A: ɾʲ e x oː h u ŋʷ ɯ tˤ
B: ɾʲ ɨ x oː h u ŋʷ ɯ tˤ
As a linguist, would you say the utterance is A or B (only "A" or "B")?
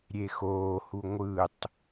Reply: A